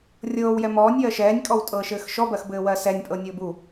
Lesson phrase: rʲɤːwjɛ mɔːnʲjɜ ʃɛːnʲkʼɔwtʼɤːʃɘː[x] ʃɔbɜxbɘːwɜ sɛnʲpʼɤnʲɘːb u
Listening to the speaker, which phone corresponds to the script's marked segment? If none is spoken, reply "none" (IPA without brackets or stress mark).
x